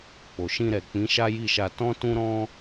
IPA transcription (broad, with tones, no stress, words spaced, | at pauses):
k͡po˨ʃĩ˧ɾɛ˨k͡pĩ˨˦ ʃa˦ji˦˨ʃa˧ tɔ̃˦ tũ˦ɾɔ̃˦